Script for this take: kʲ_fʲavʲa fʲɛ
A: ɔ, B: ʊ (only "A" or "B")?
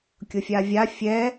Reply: B